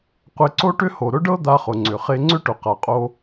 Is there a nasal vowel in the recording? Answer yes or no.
no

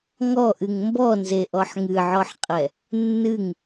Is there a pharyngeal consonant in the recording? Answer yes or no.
yes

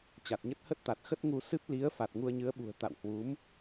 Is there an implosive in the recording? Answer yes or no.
yes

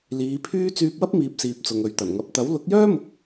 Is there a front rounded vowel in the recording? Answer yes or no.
yes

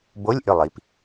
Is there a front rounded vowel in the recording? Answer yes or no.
yes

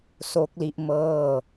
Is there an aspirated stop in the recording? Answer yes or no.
no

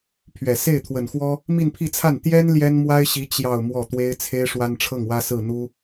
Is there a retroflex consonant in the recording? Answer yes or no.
yes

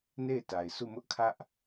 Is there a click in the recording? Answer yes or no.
no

